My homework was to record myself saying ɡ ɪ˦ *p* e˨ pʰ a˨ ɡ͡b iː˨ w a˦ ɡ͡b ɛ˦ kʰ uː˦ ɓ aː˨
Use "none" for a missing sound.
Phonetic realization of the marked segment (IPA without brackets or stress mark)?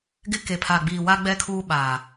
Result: k